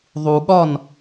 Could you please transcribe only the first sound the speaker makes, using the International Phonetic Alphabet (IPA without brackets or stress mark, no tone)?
ðˤ